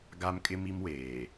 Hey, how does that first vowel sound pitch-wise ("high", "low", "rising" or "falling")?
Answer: high